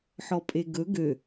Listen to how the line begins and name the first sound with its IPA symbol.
ħ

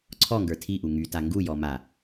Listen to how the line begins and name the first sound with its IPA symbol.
ǀʰ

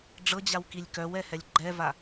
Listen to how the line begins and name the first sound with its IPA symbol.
ɖ͡ʐ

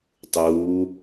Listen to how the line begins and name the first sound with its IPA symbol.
tˤ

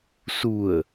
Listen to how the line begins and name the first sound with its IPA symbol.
s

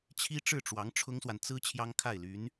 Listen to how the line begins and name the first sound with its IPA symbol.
t͡ɕʰ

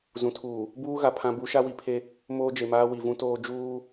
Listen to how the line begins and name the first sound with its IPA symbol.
z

